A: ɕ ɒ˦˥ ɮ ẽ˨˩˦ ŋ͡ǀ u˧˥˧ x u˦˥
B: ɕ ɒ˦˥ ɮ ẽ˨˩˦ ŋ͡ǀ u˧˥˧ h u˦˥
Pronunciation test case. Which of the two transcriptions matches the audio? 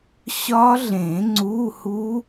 B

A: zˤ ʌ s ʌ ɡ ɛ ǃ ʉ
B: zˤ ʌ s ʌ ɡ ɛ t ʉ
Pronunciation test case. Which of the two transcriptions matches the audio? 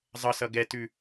B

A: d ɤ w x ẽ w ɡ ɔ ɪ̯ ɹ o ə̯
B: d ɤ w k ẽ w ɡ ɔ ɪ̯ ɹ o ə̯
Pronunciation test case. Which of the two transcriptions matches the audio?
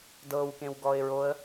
B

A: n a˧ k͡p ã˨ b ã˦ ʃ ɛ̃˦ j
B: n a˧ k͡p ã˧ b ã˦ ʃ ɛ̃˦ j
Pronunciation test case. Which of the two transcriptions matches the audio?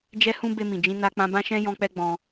B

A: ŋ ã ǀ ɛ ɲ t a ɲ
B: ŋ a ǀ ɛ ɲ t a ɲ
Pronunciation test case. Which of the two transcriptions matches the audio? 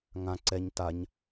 A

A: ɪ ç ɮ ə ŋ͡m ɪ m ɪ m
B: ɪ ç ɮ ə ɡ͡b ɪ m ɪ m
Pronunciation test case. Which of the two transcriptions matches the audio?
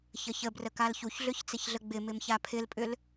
B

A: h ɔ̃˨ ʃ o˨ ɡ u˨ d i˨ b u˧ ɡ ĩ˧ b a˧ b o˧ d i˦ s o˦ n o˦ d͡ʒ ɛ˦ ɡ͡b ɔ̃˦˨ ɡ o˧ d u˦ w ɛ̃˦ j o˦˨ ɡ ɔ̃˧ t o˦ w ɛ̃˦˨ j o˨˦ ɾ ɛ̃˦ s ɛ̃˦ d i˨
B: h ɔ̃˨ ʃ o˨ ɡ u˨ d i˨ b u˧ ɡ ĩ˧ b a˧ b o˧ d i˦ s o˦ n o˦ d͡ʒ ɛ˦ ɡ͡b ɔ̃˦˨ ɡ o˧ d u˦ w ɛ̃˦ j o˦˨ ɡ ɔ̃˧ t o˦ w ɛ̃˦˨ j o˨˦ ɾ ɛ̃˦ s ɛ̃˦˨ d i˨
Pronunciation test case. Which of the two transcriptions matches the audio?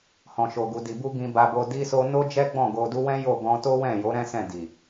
B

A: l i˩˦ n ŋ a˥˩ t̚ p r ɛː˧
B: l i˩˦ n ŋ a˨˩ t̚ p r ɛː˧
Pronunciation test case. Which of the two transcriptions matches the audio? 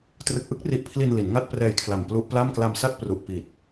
A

